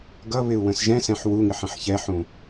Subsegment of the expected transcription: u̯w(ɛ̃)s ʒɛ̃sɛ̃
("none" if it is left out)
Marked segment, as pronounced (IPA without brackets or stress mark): ə̃